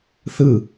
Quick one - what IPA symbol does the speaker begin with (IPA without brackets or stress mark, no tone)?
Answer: θ